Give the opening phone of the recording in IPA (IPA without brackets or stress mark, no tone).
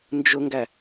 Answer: n